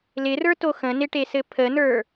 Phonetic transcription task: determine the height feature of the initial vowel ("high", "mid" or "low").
high